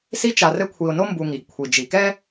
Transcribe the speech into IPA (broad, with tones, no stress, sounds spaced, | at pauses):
s i˦ t͡ʃ a˨ r ɘ˦ kʷʰ i˨ ʊ̯ n o˦ m b u˨ ŋ i˨ ɡ kʷʰ i˨ d͡ʒ i˨ k ɛ˦